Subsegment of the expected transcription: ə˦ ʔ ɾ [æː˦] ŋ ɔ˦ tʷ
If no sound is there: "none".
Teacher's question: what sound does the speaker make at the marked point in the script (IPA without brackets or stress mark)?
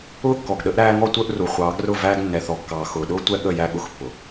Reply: æː˦